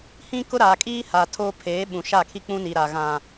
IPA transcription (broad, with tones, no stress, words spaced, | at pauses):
hĩ˦kʊ˦ ɾaː˨kʼiː˦ ha˨tʰoː˦ pʰeː˨˦ɓũ˨ʃa˦˨ kʰi˦ k͡pũ˦ni˨ɾa˨ ɣã˨